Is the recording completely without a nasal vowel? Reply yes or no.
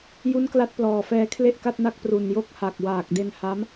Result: yes